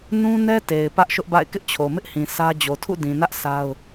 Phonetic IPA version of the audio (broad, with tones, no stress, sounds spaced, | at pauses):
n ũ˦ n ɛ˦ t e˨ ɪ̯ p ä˦ ʔ ʃ ʊ˦ ʔ b a̰˦˨ ɪ̯ k ɪ˦ ʔ t͡ɕʰ o˨ m ɪ˦ ʔ h ĩ˨ s ä˦ d͡ʑ o˨ tʰ ṵ˦˨ d ĩ˨ n ä˦ ʔ sʰ a˦ ʊ̯